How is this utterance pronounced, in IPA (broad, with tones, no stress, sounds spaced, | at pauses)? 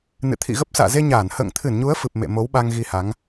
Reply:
n ɨ̰˧˨ t̪ʰ ḭ˧˨ ɣ ə˦˥ p̚ s a̰ː˧˨ z e˧ ɲ aː˧˩ n h ə̰ː˧˨ ŋ t̪ʰ ɨ˧˩ n ɲ u˨˦ ə̯ f ɨ˨˩ p̚ m ḛ˧˨ m o˨˦ w ɓ a˧ ŋ ɣ i˧ h a˨˦ ŋ